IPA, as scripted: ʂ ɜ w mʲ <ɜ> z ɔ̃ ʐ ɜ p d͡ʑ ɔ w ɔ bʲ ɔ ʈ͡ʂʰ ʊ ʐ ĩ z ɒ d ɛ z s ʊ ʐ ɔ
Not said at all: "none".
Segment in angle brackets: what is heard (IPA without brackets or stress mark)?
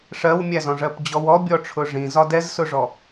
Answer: æ